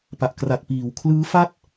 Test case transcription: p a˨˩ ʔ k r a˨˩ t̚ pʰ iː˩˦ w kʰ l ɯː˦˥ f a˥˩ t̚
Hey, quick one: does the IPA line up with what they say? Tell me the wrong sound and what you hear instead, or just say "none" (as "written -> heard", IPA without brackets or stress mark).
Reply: pʰ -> p